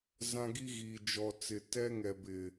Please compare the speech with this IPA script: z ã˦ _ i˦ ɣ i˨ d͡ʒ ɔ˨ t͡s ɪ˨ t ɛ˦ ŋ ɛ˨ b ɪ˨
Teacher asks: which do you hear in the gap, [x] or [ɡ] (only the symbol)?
ɡ